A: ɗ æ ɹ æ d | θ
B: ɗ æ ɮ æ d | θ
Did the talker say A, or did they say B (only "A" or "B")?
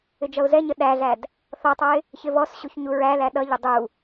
B